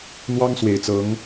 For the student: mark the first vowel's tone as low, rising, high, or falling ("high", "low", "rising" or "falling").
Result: high